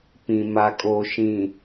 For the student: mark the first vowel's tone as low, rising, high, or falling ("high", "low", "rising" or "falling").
low